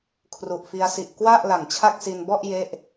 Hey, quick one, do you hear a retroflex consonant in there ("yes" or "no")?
no